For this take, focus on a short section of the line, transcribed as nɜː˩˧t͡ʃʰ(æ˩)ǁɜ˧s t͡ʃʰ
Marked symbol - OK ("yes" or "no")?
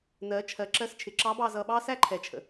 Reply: no